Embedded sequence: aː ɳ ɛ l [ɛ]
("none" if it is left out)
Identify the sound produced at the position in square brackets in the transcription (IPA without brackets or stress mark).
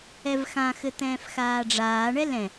ɛ̃